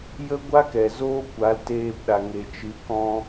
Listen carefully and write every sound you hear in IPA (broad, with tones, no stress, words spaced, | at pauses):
jə˦ɡʷa˦kɛ˨ zoː˦kʷa˨˦l teː˧pɗa˨ ŋe˨t͡ʃɨ˨˦ kɔ̃˧